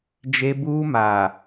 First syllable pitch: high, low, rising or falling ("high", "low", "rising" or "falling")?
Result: high